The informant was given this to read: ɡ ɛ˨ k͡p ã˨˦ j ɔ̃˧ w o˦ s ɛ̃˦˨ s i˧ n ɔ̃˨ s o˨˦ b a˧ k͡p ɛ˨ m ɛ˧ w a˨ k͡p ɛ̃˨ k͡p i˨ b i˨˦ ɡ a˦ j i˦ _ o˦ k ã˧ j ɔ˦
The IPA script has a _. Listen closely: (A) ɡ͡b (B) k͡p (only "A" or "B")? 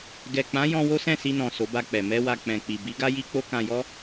B